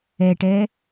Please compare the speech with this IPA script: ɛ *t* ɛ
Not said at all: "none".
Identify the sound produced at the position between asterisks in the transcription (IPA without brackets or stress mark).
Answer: ʈ